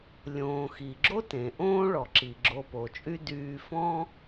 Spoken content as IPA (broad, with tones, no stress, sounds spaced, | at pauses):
lʲ õː˩ x i˩ ɡ͡ǁ o˥ t ẽ˩ ʔ õː˥ ɭ ɔ˩ ǁ i˩ ɡ͡ǁ o˧ p o˩ t͡ʃʼ y˥ d yː˧ f ɔ̃˥